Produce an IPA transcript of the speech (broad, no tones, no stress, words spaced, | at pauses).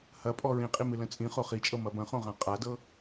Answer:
hɐpʼɔ ɹĩqʼi mɨlə̃t͡sʼĩ χoχit͡ʃʼɤ mɐbɐ̃χõʁã qʼadɤ